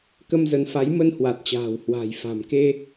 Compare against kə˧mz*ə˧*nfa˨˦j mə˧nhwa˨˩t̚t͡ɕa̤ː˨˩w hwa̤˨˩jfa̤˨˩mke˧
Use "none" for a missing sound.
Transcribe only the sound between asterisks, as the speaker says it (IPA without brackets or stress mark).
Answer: ə˨˦